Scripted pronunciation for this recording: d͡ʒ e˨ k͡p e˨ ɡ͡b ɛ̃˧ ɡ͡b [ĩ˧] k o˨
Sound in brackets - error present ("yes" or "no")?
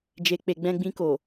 no